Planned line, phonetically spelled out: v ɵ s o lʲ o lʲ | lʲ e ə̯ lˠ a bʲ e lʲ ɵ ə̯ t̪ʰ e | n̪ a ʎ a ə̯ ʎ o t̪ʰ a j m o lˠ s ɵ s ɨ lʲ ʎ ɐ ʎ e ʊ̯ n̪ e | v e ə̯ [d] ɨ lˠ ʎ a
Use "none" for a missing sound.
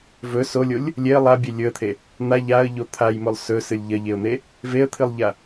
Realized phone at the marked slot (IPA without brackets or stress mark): t̪ʰ